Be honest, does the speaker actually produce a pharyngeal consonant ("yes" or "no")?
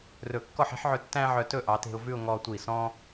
yes